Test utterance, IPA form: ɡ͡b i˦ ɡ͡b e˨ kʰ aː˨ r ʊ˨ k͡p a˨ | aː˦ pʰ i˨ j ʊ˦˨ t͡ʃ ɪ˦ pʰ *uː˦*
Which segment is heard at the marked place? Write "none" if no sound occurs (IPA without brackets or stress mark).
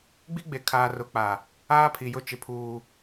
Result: uː˦